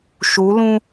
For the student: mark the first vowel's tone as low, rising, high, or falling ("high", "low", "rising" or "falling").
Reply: rising